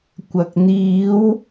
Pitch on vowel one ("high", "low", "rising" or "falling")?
low